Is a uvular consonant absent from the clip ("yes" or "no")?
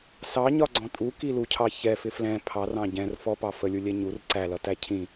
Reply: yes